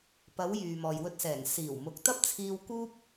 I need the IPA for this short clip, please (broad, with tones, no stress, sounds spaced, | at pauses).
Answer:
p ɐ˨˧ w j yː˨ m ɔː˨ j w ɵ˧ t̚ s ɛː˨˩ ŋ s iː˨˩ w m ʊ˨˥ k̚ t̪ ɐ˥ p̚ t͡sʰ iː˧ w k uː˥ p̚